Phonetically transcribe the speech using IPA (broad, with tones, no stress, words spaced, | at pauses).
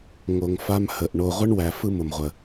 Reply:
ŋo˨ŋfa˦mhə˨ʔ ɳo˨ʁʷə˦ɳwæ˨ fɯ˦mʊ˨mʁʷə˨